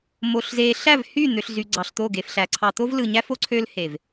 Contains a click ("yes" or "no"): yes